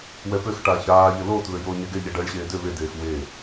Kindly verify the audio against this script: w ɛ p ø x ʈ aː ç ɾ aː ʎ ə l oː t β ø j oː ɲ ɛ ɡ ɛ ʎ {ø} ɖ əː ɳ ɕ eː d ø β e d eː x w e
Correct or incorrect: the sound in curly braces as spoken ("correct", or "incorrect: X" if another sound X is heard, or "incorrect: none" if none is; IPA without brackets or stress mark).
incorrect: ɛ